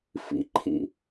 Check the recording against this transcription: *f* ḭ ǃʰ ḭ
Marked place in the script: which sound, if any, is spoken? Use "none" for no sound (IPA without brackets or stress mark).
f